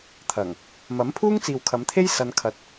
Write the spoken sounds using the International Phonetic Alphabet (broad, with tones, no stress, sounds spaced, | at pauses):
t̪ʰ ɐ˨˩ ŋ | m ɐ˨˥ m pʰ uː˥ ŋ t͡s iː˨ w kʰ ɐ˨˧ m t̪ʰ e˥ j s ɐ˧ n kʰ ɐ˧ t̚